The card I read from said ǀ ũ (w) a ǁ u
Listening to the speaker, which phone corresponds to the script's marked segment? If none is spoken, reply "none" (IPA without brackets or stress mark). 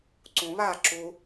β